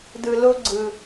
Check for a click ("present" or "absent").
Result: present